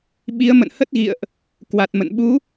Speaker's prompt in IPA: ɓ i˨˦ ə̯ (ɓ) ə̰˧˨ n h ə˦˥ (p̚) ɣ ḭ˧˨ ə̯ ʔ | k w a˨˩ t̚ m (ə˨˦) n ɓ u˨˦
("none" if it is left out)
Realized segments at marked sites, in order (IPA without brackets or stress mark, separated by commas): m, t̚, ə̰˧˨